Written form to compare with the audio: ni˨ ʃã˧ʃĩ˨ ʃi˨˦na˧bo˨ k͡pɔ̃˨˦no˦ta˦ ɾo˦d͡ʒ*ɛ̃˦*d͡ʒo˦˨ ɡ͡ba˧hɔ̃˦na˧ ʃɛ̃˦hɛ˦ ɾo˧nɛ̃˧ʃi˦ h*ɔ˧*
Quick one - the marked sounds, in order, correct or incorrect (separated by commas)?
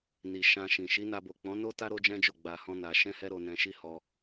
correct, correct